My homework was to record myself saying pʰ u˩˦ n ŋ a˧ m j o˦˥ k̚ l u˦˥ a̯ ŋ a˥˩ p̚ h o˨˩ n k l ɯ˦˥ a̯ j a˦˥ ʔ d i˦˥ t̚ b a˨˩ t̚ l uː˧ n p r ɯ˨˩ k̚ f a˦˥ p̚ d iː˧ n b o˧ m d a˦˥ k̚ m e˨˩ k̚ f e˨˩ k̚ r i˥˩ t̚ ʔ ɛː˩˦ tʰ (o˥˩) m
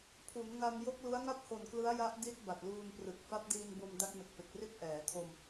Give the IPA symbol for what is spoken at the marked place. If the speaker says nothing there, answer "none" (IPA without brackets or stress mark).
o˧